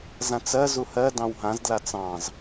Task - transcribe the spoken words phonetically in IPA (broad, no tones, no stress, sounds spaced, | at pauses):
z ã t͡s ɜ z u h ɜ d ɑ̃ w ɦ ã z d l a t͡s ɑ̃ z